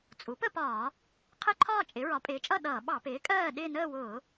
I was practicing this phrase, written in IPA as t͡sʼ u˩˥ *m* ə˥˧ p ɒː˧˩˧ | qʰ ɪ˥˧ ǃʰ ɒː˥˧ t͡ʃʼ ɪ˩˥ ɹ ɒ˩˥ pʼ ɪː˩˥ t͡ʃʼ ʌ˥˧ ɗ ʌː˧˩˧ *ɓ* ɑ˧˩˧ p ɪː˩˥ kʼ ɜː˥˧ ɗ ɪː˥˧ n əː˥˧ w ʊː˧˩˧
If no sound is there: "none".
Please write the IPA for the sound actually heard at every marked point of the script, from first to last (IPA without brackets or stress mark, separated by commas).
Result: p, ɓ